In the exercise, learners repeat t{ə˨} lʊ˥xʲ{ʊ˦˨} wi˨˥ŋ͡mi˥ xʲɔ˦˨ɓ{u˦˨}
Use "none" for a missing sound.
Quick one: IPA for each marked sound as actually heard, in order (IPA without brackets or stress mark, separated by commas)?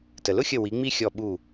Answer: ə˨, ə˦˨, u˦˨